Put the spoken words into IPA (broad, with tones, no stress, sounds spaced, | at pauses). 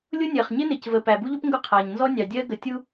lʲ ʊ˦ nʲ ɜ˨ χ ɲ ɪ˦ n ɪ˨ c v ə˨ p æ˨ b u˦ ʎ ʊ˦ p ŋ ɡ ʊ˦˨ qʰ æ˨ ɲ n z ɔ˦ nʲ ɑ˨ dʲ ɜ˦ ɡ ə˨ tʲ u˦